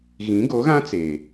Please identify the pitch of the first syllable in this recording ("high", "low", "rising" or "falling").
rising